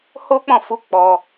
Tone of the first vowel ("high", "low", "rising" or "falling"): high